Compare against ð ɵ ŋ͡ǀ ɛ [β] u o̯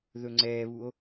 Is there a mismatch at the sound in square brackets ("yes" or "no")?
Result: no